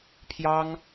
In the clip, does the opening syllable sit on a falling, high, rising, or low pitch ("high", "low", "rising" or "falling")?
high